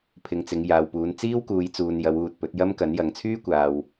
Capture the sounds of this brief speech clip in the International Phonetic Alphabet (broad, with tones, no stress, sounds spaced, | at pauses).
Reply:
pʰ ɪ˨˧ ŋ t͡s ɪ˨˧ ŋ j aː˨ w p uː˨˧ n t͡s iː˥ w k uː˨˧ j t͡s uː˨ n j ɐ˨˧ w uː˨ t̚ p ɵ˨˥ t̚ j ɐ˥ m k ɐ˨˥ n j ɐ˨˧ ŋ t͡sʰ yː˥ kʷ aː˨ w